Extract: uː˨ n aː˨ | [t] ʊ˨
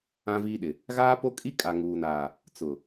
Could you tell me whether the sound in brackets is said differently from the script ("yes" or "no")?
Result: yes